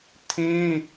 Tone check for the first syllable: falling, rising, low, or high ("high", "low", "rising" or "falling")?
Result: high